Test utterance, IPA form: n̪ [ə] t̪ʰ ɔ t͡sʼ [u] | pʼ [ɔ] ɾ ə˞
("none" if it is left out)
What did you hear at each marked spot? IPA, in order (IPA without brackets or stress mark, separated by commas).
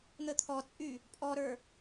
ə, y, ɔ